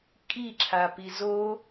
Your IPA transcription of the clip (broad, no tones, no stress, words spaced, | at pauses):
kʼiǁʰapiz o